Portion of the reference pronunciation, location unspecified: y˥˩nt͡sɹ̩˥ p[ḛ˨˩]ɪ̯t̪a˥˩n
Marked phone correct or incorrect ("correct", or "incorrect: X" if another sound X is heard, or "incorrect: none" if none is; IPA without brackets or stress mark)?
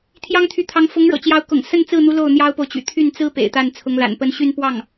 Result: correct